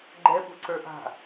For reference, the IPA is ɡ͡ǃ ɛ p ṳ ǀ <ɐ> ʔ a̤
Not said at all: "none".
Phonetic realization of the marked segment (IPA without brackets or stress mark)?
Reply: ə˞